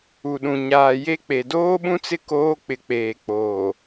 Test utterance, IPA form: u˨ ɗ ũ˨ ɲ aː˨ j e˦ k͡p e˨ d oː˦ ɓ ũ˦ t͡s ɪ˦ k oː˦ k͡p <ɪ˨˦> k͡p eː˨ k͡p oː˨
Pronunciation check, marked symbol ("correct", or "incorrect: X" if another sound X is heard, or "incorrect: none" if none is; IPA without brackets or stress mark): correct